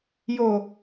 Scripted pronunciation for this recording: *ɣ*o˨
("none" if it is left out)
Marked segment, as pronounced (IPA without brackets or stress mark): j